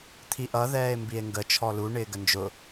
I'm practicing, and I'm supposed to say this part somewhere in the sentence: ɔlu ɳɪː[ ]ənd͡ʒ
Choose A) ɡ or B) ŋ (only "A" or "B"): A